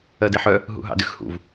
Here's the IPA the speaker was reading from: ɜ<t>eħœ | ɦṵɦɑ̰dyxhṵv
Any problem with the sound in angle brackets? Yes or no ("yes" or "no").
yes